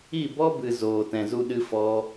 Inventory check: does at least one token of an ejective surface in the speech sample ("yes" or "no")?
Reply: no